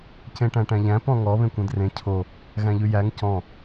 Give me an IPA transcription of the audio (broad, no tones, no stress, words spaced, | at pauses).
cẽʈæ̃ʈæ̃ʎæ̃ pɔ̃ŋɔ βẽkʷẽdrẽ cʰo | ɣæ̃ʎʉjæŋ cɔ̃